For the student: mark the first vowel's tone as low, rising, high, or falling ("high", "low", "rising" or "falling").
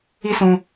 high